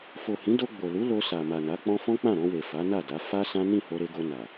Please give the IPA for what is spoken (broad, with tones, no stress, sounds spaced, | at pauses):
f o˨ h ĩ˨˦ d o˧ ɡ͡b o˨ l u˨˦ l o˧ s a˨ m a˨ n a˨˦ k͡p ɔ̃˦ f ɔ̃˦ k͡p ã˦˨ ɾ ɔ̃˧ w e˨ f a˨˦ n a˦˨ d a˨˦ f a˦ s ã˦ n ĩ˦˨ h o˧ ɾ e˧ ɡ o˧ n a˨